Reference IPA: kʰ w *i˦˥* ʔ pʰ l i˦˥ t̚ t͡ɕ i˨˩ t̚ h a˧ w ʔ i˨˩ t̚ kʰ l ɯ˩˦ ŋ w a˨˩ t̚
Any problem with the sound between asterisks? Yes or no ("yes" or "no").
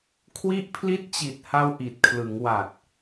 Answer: no